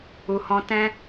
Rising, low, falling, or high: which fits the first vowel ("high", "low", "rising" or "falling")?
low